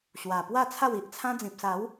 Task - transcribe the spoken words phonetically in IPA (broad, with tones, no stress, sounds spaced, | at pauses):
ɕ w a˨˩ p w a˥˧ t͡sʰ a˥˧ w i˨ ʔ t͡sʰ ã˦ d͡z ĩ˨ p̚ s a˨˦ w